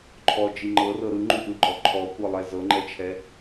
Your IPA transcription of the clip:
ǃʰɔd͡ʒi ŋ͡ǃɤrɤ ɾɯŋ͡ǃuʔɯɡ͡ǃɔ ǃʰɔkʷɤlˠɛ zɤŋ͡ǃɛt͡ʃʰɛ

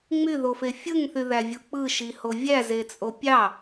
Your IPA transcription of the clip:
ŋ͡myðofe fʲɯŋθyðævʲu k͡pɯʃiho vʲæzet͡sʼo pʲɑ

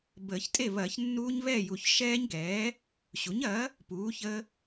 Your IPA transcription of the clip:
bəː˨˩˦çtʼe˥˨ βɐː˨˩˦çnːuː˦˥ɲβɛː˥˨ju˨˩˦ç ʃɛː˦˥ɲɡɛː˩˥ | ɕu˩˥ɲ ɐː˩˥ | puː˩˥çə˦˥

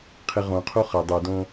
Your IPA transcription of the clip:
qʰɪʁõqʰo χə dˤɯdõ

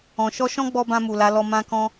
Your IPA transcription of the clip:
ɔ̃˨ʃɔ˧ʃɔ̃˦ ɡ͡bɔ˦bã˧mu˨la˨˦ lɔ˧mã˦kɔ̃˦

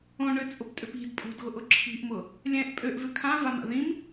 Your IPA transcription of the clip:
õɳøt͡sʼʊptʼʏp i̤d pʼo̤dɣʊʔʊ ǁʰi̤ʔmʊ | lʲɛ̃ʔ pʼøʔvʏ kʰãvama̰ ðĩm

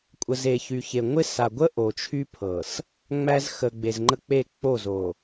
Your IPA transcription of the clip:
kʷʼə˨ze˨çy˨çe˨ ŋʷɪ˦ sa˨ɡʷə˦ ʔo˨t͡ʃʰy˦pʰɤ˨s | ŋ͡mæ˦z xə˨ ɡ͡be˨zŋ͡ǃə˦k͡pe˦˨ k͡po˦˨zo˨

